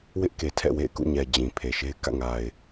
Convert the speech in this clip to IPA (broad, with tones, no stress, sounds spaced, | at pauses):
w ɪ˦ ʔ k e˨ tʰ ɛ̰˦˨ w ḛ˦˨ ɪ̯ k ṵ˦˨ ɲ ɛ˨ d͡ʑ ĩ˨ pʰ e˨ ʃ e˦ ɪ̯ k ä̰˦˨ ŋ a˨ ɪ̯